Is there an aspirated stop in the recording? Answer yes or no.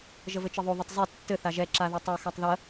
no